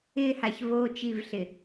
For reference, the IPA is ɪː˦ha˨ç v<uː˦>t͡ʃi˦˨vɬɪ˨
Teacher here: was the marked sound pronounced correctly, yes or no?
no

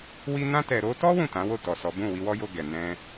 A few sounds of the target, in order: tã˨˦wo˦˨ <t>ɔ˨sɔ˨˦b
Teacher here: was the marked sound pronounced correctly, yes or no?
yes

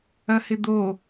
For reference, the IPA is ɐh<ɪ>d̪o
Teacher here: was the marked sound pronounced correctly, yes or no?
yes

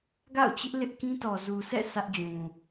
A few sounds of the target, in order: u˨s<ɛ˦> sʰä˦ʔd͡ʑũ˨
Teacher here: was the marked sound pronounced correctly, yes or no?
no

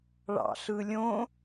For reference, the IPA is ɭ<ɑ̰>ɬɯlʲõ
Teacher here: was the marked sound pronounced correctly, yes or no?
yes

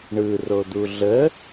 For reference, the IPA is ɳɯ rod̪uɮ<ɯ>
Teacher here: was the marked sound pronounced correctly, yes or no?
no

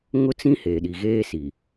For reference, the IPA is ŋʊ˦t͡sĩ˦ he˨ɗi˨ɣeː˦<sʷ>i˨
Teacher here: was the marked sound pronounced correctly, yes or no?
no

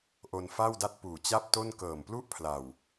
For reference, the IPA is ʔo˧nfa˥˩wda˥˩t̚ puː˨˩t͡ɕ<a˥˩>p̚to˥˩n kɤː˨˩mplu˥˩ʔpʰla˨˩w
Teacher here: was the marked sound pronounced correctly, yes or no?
yes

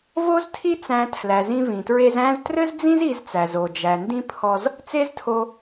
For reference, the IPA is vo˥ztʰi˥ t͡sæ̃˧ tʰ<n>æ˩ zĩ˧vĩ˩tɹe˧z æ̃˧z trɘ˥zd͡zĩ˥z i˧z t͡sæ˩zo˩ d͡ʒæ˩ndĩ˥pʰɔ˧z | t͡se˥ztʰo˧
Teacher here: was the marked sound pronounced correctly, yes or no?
no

